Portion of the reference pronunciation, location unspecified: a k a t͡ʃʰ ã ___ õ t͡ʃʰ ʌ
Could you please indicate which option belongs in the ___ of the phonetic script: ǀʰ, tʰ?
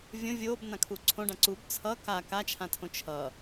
tʰ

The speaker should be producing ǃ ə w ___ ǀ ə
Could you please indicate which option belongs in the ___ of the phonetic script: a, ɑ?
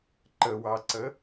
ɑ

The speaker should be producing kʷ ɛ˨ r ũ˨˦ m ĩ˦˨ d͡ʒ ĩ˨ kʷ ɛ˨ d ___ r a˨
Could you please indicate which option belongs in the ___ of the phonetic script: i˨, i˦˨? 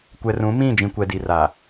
i˨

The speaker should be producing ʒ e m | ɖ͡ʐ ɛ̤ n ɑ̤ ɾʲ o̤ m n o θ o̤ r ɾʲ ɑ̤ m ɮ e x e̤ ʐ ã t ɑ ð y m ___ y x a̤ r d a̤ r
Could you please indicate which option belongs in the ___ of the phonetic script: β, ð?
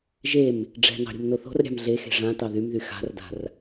ð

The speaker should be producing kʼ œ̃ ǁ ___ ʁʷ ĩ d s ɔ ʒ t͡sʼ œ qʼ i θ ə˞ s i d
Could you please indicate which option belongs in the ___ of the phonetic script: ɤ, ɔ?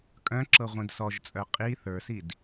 ɤ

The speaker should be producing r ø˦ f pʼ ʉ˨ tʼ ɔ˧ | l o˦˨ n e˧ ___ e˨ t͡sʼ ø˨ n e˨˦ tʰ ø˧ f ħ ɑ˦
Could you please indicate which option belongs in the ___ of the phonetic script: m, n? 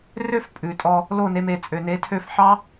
m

